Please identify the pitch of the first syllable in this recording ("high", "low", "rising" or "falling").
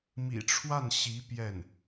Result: low